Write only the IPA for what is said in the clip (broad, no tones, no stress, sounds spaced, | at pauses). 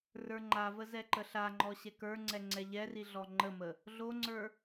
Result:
r ə˞ ŋ͡ǃ a v ə z ɛ ǃ ə ɬ a ŋ͡ǃ ɔ ɕ ɛ k ə˞ ŋ͡ǀ ɛ ŋ͡ǀ ɛ ʎ ɛ r i ɮ ɔ ŋ͡ǃ ə m ə | ɮ o ŋ͡ǀ ə˞